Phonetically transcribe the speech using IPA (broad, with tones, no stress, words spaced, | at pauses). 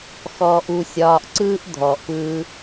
xɔː˧ʔu˧sʲɒː˧ʔ ǀɯː˥ʔ dʱɔː˩ʔpɯː˧